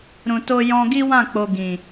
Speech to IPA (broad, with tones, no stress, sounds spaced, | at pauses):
ɾ ũ˨ t o˧ j ɔ̃˧ ɡ i˦ w ã˦˨ k͡p o˨ ɡ ĩ˨